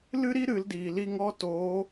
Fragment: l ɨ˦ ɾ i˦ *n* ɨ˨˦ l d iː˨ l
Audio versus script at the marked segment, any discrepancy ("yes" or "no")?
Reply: yes